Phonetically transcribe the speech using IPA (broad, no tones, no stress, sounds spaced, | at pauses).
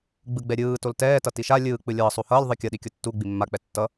ɡ͡b ɯ ɡ͡b ɛ ɾʲ ɯː t o l t ɛː t ʌ t i ʃ a lʲ ɯː k͡p ɯ lʲ ʌː sˤ u h ʌː lʲ ðˤ ɯ kʲ ʌ ɗ i kʲ o tː u ɡ͡b i mː a k͡p ɛ tː ʌ